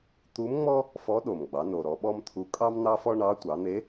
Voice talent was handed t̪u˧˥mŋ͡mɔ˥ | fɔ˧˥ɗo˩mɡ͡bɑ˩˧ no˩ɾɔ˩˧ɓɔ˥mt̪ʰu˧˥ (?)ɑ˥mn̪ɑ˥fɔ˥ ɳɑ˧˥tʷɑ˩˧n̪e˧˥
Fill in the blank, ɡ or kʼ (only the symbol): kʼ